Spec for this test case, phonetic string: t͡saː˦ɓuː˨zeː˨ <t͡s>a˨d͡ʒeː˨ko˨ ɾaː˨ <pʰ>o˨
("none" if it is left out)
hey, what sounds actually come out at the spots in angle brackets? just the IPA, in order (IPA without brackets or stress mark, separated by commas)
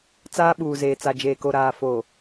t͡s, f